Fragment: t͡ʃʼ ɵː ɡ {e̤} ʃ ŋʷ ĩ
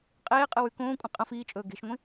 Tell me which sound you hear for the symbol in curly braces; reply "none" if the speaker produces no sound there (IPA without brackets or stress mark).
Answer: e̤